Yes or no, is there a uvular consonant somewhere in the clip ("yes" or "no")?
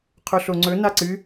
yes